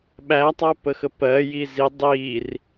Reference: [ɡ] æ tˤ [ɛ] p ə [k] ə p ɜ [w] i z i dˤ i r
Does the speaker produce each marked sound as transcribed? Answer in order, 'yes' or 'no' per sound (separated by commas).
no, no, no, no